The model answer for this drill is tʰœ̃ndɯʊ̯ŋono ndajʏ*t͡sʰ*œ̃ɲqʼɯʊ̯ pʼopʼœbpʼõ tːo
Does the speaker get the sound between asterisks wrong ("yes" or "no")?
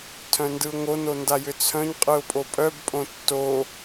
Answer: no